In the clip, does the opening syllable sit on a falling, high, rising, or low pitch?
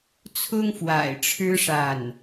high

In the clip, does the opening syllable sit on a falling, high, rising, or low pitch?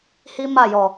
high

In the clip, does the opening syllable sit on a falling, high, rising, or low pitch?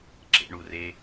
low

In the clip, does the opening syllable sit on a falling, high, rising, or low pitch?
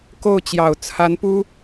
falling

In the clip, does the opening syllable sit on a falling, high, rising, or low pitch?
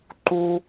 high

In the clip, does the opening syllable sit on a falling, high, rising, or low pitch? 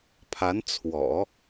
rising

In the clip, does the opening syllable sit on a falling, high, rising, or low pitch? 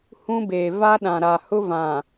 high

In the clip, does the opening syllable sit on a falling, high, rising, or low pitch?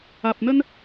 low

